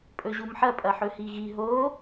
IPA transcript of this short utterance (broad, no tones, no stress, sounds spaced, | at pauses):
pʼ ɵ ʑ u m ħ ɐ pʼ ɐ ħ ɵ h i ɣ i ɦ o